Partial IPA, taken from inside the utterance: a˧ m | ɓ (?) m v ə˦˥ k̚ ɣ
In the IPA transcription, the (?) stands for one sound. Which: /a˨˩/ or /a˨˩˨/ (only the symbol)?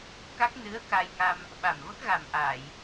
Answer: a˨˩